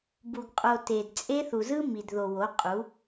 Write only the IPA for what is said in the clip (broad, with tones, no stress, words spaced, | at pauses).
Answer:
bu˨ɡqʼo˨ te˨d t͡sʼe˦ θu˨zɯ˦ mi˨dðo˨wo˨˦qʼu˨˦